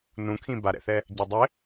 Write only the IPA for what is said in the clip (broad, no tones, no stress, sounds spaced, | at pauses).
n ũ kʰ ĩ b a ɾ ɛ̰ θ ɛ | ɟ a dˤ ɘ